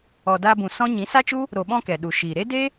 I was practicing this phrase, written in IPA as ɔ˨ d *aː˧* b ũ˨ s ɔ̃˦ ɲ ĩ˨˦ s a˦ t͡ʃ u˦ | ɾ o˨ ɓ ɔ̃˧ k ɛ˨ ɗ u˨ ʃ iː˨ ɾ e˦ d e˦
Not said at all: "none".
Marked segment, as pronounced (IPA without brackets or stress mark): aː˧